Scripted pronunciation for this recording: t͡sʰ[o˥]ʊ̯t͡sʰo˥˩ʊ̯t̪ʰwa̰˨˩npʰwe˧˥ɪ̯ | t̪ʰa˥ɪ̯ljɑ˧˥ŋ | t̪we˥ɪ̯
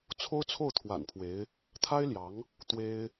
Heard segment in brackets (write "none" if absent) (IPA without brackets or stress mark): o˥